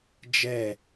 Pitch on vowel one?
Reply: falling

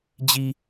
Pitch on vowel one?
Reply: low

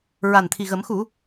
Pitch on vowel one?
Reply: low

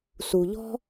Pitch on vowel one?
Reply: low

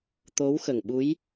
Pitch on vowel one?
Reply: rising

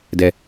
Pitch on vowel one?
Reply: low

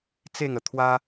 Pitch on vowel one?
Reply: falling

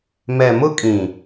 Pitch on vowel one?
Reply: low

